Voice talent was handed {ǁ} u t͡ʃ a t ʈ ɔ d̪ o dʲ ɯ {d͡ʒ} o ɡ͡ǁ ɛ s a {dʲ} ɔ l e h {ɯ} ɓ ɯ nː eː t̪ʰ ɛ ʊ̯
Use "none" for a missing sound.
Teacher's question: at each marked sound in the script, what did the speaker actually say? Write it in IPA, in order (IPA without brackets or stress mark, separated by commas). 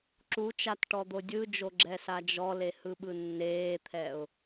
ǁ, d͡ʒ, d͡ʒ, ɯ